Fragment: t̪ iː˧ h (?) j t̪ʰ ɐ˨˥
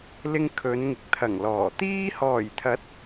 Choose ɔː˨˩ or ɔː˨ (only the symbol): ɔː˨˩